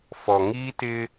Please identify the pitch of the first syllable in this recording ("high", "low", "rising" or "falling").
low